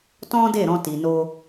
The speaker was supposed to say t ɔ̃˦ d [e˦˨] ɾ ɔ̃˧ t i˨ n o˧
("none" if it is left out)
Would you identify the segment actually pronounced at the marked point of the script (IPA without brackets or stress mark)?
e˦˨